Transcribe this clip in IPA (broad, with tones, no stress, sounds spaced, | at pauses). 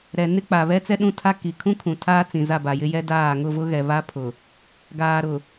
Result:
ɾ ɛ˨ n ɪ˦ k͡p a˨ β ɛ˦ t͡s ɛ˦ ɗ ũ˦ tʰ a˦ k i˨ kʰ ũ˦ kʰ ũ˨ tʰ aː˦ t͡s ĩ˨ z a˦˨ b a˨ j ɪ˦ j ɛ˦ d aː˦˨ ŋ ʊ˦˨ v ʊ˦ ɣ ɛ˨ β a˦ pʰ ʊ˨ | ɡ aː˨ ɾ ʊ˨